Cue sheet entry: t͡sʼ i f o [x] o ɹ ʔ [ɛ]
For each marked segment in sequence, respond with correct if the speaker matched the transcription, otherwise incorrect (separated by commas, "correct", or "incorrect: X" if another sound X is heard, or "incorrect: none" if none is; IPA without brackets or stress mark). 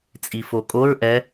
incorrect: kʼ, correct